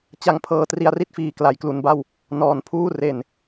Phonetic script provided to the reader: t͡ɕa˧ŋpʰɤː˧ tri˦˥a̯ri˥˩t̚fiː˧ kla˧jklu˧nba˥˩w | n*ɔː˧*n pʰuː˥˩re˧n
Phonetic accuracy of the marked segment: correct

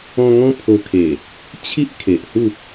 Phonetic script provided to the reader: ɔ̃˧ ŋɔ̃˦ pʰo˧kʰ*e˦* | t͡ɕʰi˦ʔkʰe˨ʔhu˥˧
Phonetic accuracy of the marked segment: incorrect: e˨˩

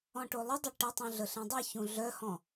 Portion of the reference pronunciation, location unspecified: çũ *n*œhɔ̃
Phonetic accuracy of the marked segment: incorrect: ɮ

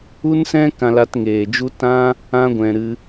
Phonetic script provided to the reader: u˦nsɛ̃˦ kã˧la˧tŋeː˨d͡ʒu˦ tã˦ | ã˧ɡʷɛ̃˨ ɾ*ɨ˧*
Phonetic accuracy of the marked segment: correct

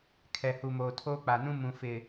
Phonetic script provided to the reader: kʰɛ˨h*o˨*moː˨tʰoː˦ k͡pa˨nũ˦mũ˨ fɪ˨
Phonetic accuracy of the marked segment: incorrect: u˨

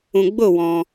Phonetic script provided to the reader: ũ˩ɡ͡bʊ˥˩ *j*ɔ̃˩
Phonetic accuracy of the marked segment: incorrect: w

